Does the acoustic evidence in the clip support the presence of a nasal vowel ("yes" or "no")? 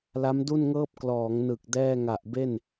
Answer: no